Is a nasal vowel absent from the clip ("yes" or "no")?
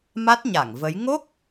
yes